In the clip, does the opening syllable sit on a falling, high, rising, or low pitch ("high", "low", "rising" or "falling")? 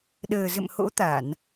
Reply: low